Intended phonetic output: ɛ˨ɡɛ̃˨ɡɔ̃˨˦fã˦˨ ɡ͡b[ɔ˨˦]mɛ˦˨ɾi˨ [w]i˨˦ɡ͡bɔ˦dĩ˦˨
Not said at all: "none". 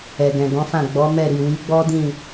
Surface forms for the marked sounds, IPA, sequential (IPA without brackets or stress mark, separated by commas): ɔ˨˦, w